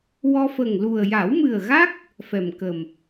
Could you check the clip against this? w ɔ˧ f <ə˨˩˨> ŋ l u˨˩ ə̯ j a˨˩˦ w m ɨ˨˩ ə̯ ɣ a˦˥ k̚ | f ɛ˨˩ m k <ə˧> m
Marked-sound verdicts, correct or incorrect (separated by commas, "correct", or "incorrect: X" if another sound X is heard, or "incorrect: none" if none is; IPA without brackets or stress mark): incorrect: ə˨˩, incorrect: ə˨˩